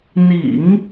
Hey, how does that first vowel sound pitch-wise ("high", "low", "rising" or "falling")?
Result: low